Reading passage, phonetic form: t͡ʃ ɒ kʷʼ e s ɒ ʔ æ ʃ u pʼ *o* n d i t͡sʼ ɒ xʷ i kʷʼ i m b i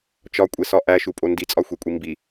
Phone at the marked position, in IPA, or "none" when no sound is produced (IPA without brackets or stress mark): o